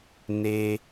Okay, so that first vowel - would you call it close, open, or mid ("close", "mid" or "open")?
mid